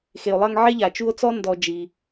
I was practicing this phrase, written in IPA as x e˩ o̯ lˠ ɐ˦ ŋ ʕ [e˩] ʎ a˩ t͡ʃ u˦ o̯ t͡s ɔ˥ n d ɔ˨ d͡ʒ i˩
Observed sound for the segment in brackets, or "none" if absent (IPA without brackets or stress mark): e˥